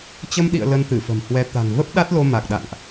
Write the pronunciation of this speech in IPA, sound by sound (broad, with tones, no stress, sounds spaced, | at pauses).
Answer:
t͡ɕ ə˧ m ɗ ḭ˧˨ ə̯ l ə˧ n t̪ ɨ˧˩ f ə̤˨˩ m h w ɛ˨˦ t̪ a̤˨˩ ŋ v ə˦˥ p̚ ɗ a˦˥ t̚ l o˧ m a˨˩ k̚ ɗ a̰˧˨ ŋ ʔ